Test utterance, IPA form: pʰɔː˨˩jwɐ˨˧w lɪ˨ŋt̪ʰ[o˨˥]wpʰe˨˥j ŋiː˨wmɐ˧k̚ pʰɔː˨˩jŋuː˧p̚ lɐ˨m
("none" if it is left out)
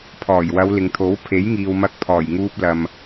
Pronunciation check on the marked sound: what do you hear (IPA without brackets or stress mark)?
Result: o˨˥